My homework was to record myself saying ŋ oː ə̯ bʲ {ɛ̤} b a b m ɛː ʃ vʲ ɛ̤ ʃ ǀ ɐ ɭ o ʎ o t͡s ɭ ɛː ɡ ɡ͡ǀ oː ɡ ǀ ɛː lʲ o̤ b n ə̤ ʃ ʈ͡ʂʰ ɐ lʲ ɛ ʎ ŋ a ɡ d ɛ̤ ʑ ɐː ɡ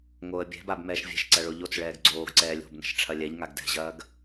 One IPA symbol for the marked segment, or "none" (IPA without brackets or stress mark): ɛ̤